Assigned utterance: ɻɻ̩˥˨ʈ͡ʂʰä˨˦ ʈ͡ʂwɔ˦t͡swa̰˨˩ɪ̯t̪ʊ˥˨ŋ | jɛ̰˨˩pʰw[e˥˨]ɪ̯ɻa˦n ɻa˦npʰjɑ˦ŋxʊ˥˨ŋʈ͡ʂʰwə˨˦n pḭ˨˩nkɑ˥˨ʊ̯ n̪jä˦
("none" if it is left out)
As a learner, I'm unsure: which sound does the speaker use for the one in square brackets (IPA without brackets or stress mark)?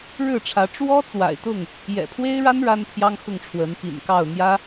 e˦